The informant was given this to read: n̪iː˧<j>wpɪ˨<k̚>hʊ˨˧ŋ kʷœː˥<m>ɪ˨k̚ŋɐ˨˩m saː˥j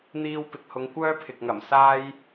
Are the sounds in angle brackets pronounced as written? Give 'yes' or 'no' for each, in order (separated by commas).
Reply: no, yes, no